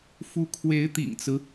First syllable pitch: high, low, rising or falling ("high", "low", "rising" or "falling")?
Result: rising